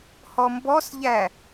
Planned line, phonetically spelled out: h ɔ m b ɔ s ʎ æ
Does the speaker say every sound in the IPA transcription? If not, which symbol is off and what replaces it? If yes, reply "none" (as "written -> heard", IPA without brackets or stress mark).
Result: none